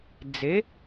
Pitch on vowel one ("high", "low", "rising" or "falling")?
rising